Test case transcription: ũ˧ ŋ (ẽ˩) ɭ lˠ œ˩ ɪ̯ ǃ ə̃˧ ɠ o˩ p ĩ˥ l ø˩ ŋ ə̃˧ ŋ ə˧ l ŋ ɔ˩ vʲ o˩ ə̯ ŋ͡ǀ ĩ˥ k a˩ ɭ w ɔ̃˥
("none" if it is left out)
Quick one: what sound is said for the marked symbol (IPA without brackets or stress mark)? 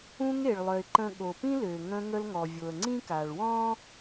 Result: e˩